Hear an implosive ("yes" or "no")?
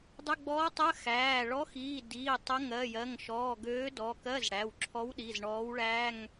yes